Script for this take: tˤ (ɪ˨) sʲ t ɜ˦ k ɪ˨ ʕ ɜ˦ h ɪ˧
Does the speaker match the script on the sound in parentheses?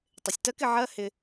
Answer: yes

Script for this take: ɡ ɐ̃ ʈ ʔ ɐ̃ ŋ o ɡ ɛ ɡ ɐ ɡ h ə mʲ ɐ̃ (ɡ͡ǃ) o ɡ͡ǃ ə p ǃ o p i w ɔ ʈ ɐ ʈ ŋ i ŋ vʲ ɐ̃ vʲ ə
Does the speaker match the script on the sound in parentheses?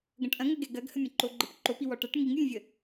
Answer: no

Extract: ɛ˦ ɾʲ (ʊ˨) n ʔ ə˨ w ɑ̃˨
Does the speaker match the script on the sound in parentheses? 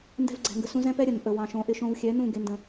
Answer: no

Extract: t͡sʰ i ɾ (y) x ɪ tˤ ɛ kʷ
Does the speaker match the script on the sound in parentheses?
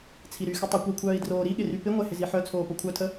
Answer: yes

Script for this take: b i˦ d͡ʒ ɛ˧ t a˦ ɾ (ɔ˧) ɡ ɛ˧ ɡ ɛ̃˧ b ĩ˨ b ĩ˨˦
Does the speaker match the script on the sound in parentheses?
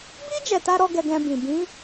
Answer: yes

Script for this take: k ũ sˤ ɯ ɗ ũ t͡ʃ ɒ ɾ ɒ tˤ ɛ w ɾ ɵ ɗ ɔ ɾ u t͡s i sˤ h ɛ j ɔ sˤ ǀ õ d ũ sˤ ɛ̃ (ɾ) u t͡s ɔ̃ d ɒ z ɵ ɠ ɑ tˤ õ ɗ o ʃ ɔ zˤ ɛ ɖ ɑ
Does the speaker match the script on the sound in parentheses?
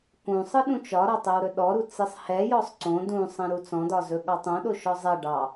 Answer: yes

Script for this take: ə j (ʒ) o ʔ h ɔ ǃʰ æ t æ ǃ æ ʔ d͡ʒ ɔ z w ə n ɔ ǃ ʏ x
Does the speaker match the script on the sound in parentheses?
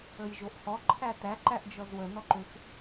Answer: yes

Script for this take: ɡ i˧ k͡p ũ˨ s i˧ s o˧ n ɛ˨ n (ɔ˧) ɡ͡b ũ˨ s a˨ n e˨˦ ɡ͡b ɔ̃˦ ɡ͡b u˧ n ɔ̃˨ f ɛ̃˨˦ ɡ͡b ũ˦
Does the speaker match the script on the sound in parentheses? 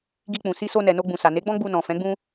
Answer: no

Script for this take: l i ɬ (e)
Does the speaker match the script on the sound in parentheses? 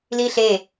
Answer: yes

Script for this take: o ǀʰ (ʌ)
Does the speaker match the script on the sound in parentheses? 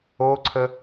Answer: no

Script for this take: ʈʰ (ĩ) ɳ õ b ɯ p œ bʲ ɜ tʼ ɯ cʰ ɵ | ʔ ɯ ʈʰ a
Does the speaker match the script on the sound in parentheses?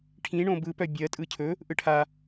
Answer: yes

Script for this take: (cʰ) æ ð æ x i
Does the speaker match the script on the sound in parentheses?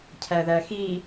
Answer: yes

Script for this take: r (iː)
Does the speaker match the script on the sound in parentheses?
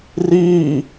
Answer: yes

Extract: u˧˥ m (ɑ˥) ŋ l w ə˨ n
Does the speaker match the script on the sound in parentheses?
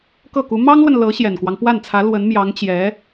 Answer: yes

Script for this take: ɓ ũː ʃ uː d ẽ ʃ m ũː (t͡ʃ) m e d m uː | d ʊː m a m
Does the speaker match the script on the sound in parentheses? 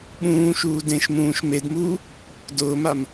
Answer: no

